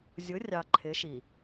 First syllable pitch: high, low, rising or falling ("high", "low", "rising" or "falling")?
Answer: rising